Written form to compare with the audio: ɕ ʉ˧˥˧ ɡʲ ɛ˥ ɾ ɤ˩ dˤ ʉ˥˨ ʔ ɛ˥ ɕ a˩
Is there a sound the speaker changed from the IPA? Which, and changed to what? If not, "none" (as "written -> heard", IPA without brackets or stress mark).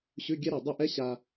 a˩ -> a˧